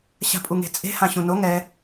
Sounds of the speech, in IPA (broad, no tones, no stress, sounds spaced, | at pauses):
ɕ a̤ pʼ u ŋ e̤ t͡sʼ e̤ h ã ɕ ũ n o ŋ ɛ